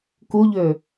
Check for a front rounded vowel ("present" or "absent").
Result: present